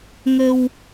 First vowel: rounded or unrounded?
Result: unrounded